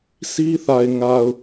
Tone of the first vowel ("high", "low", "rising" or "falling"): high